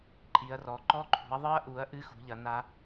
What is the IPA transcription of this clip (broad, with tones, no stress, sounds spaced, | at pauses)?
ǃʼ i˨˦ ɐ̯ r ɔ˨˦ ǃ ɔ˦˥ ǃʰ ṳ˨˦ ɐ̯ ðˤ ɨ˦˥ ɐ̯ ʔ u˨˦ ɐ̯ ʔ ɨ˦˥ x ṳ˨˦ ʎ ɐ˨˦ n a˦˥